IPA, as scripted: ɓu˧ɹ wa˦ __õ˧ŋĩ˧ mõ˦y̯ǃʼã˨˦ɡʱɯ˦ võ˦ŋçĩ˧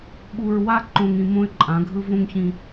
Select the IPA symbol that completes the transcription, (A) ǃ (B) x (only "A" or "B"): A